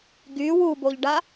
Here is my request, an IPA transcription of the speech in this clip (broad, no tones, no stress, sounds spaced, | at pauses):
ɡ y w u b o ʎ ɖ a